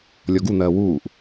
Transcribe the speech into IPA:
lʲɔɡun̪ɜː wuːʔ

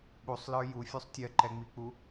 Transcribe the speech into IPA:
ɓusˤlə˞ jufʲusˤ tʲɜǃɛŋ͡mik͡pu

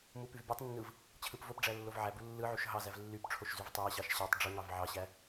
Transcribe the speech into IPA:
mupyvbʲɯtˤnːɯv | t͡ɕʰɯpvopɖ͡ʐæ lːovʕæbu lːɯʕyʃ ɦɑzæv lːypʈ͡ʂʰoʃ zyvtˤæɕɑʃ ɕɑtˤ ɖ͡ʐuŋɑv ʕɑɕæ

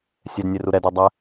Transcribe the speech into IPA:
sʲɛdnʲeru ɾɛdɘ dˤɛ

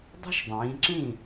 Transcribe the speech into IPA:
dˤə̤˥ʃdˤĩː˩˧ǁĩ˥˩

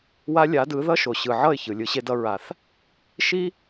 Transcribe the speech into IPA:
wa˧ lʲa˨˦dɯ˨˦ ðʌ˦ʃo˨ ɕɯ˨ʕʌ˦˨ɪ̯çɯ˨ lʲɯ˧ɕe˦dʌ˦ ɹa˨θ | ʃi˦

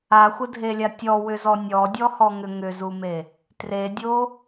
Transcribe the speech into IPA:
axʷədʱelʲa tʲɔwʏzɔ nʲɔdʲɔhɔŋʏ ŋʏzume | tredʲo

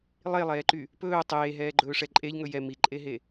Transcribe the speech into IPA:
lˠelˠɛːǃy | pɵː tˤeːɦɛːɡ͡ǃɵːʂɛ ǃʼeʎŋɵ jɛ miǃʼeɦe

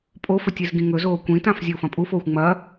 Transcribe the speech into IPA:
pʼofɵtʲ izɡĩŋɵzoː kʷĩtãf zʲɐʊ̯fɐ̃pʼufoːxʷ ŋ͡mɐ

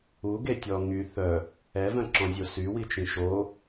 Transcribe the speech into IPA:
u ɡetʲɔ ŋy θœ | ɛvœ̃ǁɔ̃zʲo sywit͡ʃĩ ʃo

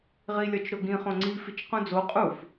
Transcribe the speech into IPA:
ʁilʲɒt͡ʃɾoɡĩ χõŋ͡ǀi fit͡ʃqũd͡zo qʼuf

